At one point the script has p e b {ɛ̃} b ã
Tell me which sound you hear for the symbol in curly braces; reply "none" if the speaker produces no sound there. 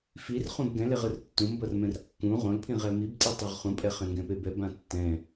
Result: ɛ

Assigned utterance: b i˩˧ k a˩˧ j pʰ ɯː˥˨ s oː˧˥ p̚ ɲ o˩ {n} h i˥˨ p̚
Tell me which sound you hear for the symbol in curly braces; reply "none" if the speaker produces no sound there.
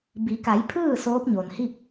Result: n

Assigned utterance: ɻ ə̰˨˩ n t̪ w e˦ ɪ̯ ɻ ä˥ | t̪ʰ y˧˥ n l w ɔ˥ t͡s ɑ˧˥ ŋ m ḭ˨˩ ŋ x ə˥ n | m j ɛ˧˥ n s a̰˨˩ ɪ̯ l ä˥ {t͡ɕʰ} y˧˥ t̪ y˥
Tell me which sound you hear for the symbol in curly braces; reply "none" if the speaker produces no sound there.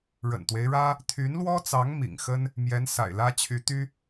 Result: t͡ɕʰ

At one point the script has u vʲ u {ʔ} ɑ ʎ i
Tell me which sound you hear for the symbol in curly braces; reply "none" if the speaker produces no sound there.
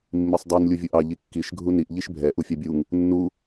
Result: ʔ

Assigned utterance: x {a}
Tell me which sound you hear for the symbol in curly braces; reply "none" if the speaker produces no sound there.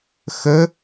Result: ə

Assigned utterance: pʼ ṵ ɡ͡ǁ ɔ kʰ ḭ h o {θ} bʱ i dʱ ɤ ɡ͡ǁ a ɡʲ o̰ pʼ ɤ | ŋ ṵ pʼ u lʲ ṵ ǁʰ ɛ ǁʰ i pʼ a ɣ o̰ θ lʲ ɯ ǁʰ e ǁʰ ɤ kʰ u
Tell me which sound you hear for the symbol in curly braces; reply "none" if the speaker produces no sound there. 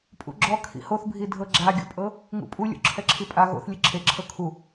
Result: θ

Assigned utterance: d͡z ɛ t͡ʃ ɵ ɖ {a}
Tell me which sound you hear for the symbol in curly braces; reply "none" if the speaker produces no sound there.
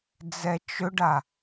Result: a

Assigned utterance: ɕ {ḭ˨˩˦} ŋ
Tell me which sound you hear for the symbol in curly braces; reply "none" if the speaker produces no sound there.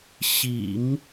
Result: ḭ˨˩˦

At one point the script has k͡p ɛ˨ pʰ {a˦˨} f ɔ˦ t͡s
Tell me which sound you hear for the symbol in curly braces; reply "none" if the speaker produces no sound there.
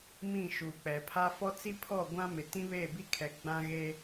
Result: a˦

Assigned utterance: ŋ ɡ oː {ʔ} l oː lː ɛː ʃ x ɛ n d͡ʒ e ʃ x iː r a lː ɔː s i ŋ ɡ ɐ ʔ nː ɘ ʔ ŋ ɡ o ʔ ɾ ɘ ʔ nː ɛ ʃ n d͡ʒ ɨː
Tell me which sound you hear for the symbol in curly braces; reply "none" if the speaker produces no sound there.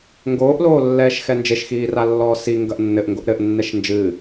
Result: ʔ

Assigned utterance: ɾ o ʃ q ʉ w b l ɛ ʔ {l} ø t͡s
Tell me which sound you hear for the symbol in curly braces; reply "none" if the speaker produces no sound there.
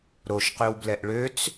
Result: ɭ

